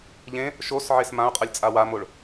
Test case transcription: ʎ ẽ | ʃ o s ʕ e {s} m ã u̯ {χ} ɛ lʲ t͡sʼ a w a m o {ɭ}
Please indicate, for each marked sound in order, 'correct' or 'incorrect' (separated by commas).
correct, incorrect, correct